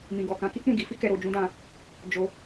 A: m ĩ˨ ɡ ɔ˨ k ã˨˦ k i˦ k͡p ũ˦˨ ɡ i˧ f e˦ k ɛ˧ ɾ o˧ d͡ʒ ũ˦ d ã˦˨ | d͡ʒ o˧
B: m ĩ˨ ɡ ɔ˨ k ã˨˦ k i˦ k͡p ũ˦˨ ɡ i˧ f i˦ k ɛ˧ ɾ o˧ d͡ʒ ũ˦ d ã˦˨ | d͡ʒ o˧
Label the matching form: B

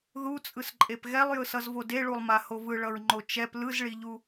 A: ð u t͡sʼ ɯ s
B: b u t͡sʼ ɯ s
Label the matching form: A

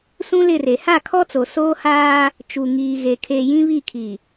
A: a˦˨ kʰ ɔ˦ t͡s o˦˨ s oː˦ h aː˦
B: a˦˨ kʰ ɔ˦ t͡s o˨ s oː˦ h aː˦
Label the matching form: B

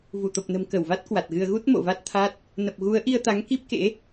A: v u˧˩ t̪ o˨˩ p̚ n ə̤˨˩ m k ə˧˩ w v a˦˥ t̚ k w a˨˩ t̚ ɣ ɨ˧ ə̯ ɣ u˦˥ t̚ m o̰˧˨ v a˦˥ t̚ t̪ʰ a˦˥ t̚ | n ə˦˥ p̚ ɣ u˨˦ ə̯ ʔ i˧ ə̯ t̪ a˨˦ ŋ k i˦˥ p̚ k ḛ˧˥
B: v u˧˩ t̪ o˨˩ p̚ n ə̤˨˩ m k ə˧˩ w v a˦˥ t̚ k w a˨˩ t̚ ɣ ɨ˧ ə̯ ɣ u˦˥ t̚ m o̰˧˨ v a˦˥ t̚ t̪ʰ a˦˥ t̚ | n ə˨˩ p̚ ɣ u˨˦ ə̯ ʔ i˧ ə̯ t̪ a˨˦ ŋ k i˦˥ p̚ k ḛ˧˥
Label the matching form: B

